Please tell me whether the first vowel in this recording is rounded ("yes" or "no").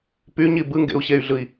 yes